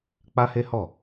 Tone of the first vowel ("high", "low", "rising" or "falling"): high